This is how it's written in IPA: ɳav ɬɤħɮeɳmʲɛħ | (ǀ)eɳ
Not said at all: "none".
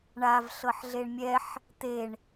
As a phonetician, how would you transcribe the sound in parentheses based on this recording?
t̪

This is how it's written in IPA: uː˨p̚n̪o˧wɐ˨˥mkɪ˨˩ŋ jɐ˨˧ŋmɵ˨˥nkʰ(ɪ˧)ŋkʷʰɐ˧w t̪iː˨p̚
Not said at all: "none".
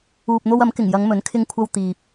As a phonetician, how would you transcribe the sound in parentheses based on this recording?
ɪ˧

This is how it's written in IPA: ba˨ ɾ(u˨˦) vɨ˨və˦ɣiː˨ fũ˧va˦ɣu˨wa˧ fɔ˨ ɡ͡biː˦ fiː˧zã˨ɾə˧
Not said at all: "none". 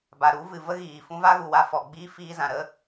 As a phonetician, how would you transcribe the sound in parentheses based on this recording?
u˨˦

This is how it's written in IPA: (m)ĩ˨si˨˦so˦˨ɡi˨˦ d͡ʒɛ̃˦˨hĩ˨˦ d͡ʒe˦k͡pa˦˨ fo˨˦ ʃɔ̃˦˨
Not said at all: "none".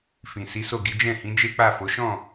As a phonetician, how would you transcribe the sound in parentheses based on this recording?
f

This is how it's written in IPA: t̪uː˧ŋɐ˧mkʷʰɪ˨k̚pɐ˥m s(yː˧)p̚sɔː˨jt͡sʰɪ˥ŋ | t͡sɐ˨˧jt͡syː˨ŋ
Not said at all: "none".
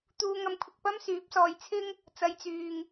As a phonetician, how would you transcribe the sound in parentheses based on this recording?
yː˨˥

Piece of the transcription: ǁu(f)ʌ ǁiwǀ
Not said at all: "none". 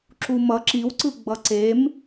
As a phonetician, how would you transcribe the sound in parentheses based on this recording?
m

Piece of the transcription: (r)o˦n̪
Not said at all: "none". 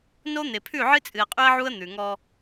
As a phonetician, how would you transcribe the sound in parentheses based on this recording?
n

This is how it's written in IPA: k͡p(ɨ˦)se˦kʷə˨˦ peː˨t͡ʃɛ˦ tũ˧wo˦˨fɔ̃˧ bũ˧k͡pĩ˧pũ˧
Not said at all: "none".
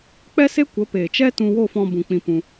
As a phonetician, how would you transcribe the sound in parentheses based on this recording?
ɛ˦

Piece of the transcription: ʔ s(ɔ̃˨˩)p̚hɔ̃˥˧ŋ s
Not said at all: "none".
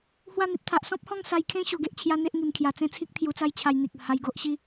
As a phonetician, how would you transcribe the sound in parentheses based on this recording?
ɔ̃˦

